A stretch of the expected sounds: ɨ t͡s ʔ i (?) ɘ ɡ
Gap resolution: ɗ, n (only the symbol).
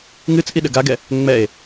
ɗ